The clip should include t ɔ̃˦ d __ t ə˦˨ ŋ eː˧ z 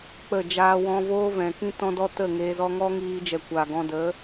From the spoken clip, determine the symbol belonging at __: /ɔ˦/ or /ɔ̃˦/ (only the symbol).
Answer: ɔ˦